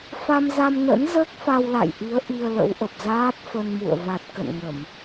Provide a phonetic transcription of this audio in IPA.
fa˧mza˧mnə̰˧˥n zəː˦˥k̚fa˧wla̰˧˨jʔi˨˦ə̯ ʔi˧ə̯lə̰˧˥wʔə˨˩p̚ zaː˦˥t̚fə˧nmṵ˧˨ə̯ va˨˩t̚kə̰˧˨nŋə˧˩˨m

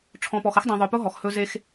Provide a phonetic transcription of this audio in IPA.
ʈ͡ʂʰɔ̃˨pɔ˨xə˦xdˤĩ˨ ðˤʏ˨pʊ˦ ɦɔ˨xhɵ˦ ze˦x

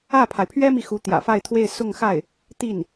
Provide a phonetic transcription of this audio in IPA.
ä˥˩pʰa˩ɪ̯pʰɥɛ˥mi˨ xu˧˥t̪jä̰˨˩fa˥˧ɪ̯t̪ʰwe˥˧ɪ̯ sʊ˥˧ŋxa˥˩ɪ̯ | t̪i˥˩n

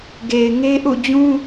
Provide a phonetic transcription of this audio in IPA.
ɡe˨ɪ̯ ŋe˦ʔṵ˦˨ d͡ʑũ˦

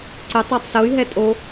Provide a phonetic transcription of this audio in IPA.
ǀʏ tˤatˤsoy̯ ɦɛtʼo

